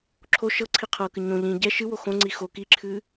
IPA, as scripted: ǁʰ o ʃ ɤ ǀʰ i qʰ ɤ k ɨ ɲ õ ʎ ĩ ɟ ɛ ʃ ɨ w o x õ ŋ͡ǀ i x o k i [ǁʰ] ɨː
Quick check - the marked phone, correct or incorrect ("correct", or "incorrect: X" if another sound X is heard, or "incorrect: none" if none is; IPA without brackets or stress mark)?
correct